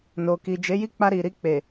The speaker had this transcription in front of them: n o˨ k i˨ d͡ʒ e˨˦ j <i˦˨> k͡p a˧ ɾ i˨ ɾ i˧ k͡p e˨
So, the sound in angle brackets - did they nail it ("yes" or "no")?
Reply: yes